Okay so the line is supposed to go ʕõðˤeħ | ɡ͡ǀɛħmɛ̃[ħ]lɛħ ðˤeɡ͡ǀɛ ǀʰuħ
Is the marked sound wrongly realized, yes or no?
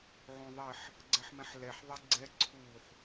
no